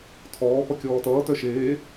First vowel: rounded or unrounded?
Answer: rounded